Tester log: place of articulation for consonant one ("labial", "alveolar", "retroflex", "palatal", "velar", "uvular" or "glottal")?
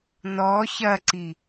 alveolar